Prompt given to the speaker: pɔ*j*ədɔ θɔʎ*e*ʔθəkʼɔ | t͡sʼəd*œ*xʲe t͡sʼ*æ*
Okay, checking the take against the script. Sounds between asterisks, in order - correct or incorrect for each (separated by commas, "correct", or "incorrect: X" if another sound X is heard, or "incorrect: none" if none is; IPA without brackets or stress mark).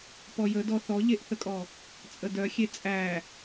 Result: correct, correct, correct, correct